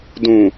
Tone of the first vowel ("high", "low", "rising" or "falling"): low